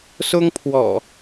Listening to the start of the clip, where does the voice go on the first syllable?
high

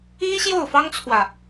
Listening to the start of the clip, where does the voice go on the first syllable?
high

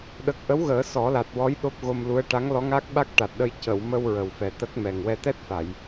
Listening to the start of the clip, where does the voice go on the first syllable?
low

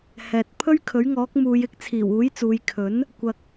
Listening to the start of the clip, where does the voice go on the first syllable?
low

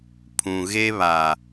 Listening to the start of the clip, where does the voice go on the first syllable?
low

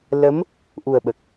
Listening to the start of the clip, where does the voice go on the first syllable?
rising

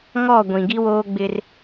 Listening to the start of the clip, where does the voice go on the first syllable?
falling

